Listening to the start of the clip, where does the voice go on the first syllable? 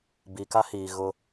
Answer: low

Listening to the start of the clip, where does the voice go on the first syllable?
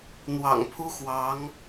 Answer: low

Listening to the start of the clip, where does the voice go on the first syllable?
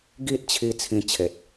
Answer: high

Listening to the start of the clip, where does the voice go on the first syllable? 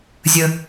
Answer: low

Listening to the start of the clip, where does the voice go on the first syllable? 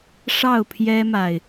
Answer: falling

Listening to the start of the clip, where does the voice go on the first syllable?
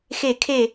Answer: falling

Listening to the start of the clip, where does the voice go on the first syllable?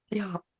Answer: falling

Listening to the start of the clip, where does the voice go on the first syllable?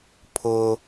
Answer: high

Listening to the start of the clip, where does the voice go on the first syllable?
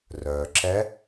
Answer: low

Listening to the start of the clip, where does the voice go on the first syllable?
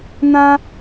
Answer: high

